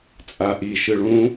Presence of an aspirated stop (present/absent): absent